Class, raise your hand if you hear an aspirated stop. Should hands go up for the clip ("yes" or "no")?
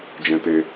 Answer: no